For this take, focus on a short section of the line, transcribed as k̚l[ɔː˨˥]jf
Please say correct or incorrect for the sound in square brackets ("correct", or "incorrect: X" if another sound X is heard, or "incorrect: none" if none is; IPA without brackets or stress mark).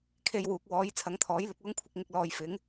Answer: incorrect: ɔː˨